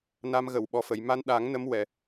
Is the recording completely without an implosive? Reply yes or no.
no